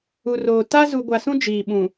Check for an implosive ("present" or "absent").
present